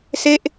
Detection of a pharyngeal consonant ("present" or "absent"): absent